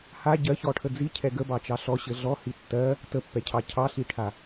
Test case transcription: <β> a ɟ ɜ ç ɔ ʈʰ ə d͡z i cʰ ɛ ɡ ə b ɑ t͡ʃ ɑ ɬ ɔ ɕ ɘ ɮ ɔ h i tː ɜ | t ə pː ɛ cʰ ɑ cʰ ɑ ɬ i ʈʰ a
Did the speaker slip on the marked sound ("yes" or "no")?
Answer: yes